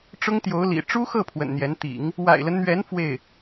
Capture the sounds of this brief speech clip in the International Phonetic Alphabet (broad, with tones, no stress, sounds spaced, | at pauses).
ʈ͡ʂ ʊ˥ ŋ t̪ j o˧˥ ʊ̯ l ḭ˨˩ ʈ͡ʂ u˥ x ɤ˥˩ pʰ w ə̰˨˩ n n̪ j ɛ˧˥ n t̪ ḭ˨˩˦ ŋ | w a̰˨˩ ɪ̯ l ə˦ n n̪ ɥ ɛ˧˥ n f w e˥˩ ɪ̯